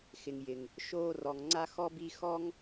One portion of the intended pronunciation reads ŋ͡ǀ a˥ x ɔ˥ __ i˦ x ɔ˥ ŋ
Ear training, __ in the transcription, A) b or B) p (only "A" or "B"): A